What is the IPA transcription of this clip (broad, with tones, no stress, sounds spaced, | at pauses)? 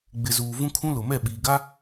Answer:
ɡ͡b ɪ˨ z uː˨ v ũ˦ kʰ ũ˦ l ʊ˨ m ɛ˦˨ ɓ iː˨ ɡ a˦